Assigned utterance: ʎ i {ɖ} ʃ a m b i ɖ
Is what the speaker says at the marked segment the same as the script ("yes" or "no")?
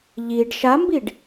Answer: yes